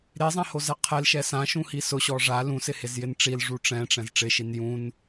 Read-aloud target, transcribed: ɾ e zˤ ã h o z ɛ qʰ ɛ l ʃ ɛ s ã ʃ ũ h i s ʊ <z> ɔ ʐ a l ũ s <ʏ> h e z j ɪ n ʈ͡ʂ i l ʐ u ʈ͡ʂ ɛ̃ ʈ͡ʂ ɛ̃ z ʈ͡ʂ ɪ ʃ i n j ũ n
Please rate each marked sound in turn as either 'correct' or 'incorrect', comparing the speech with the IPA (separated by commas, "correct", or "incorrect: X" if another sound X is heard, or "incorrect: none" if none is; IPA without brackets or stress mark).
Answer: incorrect: ɕ, incorrect: ɪ